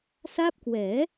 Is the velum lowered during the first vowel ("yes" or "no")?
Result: no